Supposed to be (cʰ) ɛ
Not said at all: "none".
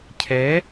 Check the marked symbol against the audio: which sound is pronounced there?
cʰ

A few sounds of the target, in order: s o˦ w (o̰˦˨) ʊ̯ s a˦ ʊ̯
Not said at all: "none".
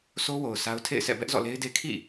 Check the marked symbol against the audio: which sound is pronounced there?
o˨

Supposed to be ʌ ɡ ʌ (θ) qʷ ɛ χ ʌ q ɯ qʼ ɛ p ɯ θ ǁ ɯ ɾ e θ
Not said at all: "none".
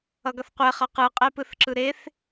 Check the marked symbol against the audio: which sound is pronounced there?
θ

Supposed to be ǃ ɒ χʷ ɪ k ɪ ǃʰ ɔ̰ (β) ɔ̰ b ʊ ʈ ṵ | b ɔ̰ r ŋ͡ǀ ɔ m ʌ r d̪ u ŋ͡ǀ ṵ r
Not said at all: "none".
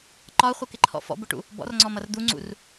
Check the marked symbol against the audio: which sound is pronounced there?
f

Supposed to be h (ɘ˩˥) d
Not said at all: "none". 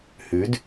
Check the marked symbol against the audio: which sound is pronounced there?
ʉ˩˥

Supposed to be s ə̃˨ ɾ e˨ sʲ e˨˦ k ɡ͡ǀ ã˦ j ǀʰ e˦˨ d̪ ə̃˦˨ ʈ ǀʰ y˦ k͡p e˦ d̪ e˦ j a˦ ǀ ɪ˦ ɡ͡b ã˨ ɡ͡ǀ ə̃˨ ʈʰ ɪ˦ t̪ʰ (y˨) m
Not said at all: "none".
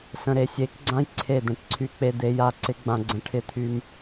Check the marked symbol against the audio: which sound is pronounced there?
y˦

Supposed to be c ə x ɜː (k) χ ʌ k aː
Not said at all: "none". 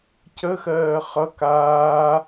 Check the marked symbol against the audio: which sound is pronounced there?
none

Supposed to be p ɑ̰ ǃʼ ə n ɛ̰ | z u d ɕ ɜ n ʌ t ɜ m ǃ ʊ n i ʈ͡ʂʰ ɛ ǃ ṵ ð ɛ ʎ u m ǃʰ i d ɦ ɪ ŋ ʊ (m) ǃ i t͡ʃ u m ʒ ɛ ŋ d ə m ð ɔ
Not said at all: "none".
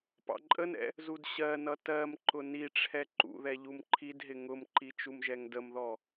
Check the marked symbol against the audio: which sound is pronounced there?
m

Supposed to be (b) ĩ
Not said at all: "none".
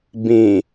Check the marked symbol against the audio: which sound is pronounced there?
b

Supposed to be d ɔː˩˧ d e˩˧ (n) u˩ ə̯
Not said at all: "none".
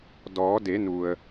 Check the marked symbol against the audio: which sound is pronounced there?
n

